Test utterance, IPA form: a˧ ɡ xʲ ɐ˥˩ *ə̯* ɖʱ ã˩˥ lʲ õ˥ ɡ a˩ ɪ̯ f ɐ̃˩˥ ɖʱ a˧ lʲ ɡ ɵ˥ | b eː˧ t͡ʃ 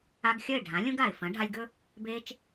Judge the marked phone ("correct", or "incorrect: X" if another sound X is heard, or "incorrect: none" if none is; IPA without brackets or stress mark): incorrect: ɪ̯